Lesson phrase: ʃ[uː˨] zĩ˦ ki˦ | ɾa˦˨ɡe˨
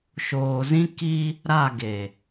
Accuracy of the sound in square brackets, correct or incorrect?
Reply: incorrect